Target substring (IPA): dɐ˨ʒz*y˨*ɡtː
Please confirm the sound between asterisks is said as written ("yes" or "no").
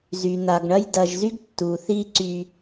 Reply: no